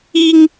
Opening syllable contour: high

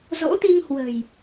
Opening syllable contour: rising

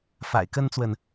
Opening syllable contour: low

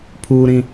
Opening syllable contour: low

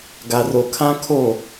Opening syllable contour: low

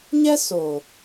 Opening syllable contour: high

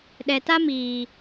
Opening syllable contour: low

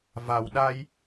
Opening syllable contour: low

